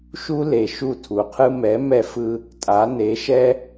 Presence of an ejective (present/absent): present